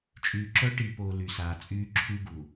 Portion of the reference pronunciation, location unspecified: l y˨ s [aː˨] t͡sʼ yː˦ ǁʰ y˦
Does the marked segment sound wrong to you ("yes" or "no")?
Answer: no